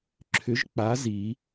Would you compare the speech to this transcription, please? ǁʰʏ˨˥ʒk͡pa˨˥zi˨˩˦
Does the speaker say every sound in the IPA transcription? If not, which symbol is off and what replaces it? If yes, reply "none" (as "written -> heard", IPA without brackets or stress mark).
none